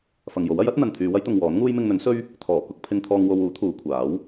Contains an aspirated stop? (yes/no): yes